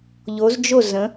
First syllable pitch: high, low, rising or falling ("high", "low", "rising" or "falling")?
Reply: rising